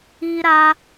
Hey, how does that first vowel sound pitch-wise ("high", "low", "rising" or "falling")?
high